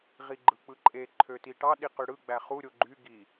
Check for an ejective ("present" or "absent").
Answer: present